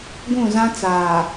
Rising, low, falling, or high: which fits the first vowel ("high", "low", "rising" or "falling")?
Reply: falling